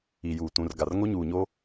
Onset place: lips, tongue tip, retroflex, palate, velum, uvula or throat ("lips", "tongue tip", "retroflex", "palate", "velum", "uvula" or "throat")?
palate